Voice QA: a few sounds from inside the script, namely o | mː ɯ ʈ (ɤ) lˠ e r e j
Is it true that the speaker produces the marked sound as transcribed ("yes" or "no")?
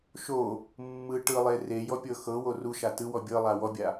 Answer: no